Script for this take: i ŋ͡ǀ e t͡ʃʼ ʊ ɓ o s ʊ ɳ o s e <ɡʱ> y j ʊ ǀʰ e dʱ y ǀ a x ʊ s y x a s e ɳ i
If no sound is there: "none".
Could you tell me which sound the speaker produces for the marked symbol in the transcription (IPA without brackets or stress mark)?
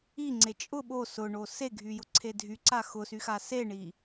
ɡʱ